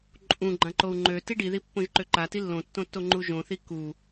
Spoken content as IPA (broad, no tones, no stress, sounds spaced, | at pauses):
ǃʼ ũ ɡ͡ǃ ã ǃ o u̯ ŋ͡ǃ ø t i ɖ i ð i pː õ ʒ ǃ ø ǃ a t i lː õ tː õ tː o ŋ͡ǃ u ʒ õ θ i k u